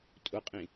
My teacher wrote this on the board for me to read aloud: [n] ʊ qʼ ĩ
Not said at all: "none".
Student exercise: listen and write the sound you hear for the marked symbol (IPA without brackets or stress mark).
tʼ